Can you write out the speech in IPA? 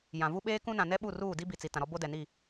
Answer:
jã˨vu˦ɓeː˦kũ˦ nã˨nɛ˦ɓu˦˨ ruː˦˨di˦ bi˨t͡si˨ tã˨ɾɔ˦ bo˦dɛ˨ni˦˨

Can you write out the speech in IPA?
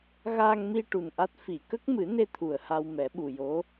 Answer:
ɣaː˧ŋmi˧ ʈu˨˩nʔa˦˥t̚ fi˨˩˨kə˦˥k̚ mɨ˨˩˦ne˧ t̪ʰu˨˩ə̯ ha˧wmɛ˨˩˦ɓu˨˩jo˧˥

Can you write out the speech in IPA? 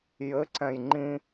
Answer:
jɘǀɛ̃j ŋ͡ǃĩ

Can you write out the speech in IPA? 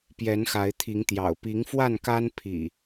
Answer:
pjɛ˨˦nxa˨˦ɪ̯t̪ʰi˨˦ŋt̪jɑ̰˨˩ʊ̯ pi˨˦ŋfwa˥˨nka˦n pʰḭ˨˩

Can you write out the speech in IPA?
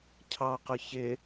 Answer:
cʰɑqʊ çɪ

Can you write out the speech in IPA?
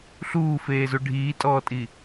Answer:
ɬuːfeːzu ɖʱiːtʼɔːtʼi

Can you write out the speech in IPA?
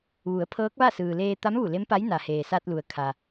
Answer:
ʋu˩˧ə̯ pʰɤː˧˥k̚ʋa˥˨ sɯː˩leː˧t̪a˧˥mʋu˧˩ le˧˥mpa˧˥j na˩heː˩ sa˧t̚lu˩ə̯ kʰa˩

